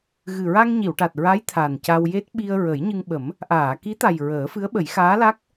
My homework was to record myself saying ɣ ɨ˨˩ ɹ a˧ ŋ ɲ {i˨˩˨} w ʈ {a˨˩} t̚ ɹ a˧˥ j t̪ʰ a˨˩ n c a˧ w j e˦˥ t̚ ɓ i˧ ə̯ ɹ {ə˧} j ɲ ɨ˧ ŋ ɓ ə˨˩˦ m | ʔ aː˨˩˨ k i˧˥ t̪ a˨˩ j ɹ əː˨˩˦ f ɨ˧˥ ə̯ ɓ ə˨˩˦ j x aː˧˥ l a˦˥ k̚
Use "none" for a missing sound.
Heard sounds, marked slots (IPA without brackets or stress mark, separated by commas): i˨˩˨, a˨˩, ə˨˩˦